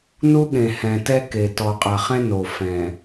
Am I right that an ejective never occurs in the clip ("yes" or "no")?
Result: no